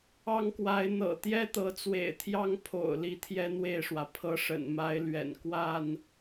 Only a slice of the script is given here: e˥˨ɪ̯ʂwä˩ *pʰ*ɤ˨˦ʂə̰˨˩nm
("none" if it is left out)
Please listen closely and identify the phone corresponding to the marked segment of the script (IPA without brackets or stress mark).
pʰ